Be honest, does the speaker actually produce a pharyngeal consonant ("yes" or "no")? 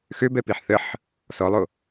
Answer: yes